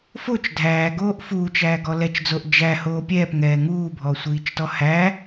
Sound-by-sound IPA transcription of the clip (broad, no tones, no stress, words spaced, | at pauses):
fot͡ʃ dʱæːɡoːʔ fuːt͡ʃæːɡɔ lɛt͡ʃd͡zoʔ d͡ʒæhoː pʲɛːpŋɛː ŋuːbʱɔsʷiːt͡ʃtɔ hæ